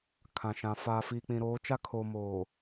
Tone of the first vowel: low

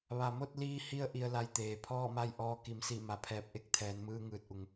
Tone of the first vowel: low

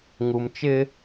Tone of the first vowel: low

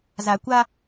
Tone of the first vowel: low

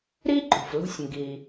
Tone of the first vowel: high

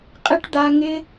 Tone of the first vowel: high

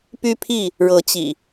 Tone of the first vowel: high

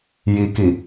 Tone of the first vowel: low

